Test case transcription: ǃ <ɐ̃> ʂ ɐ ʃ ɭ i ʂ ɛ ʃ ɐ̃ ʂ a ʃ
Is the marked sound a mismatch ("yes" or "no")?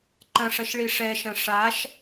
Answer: no